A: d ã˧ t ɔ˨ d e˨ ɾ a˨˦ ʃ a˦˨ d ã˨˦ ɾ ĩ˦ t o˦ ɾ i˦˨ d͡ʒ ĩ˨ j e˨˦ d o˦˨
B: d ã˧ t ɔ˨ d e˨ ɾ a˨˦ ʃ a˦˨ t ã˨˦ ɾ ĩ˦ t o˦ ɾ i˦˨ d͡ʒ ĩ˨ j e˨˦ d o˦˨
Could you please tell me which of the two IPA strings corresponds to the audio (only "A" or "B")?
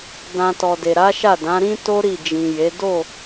A